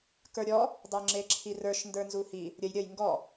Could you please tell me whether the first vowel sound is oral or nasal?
oral